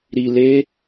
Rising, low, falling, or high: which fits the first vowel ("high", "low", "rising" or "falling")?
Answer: low